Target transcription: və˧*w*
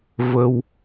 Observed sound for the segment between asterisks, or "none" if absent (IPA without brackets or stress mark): w